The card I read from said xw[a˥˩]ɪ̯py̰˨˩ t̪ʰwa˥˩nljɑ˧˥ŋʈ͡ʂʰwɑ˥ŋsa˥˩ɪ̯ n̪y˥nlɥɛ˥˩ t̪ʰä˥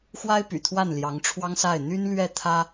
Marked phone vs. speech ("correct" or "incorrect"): incorrect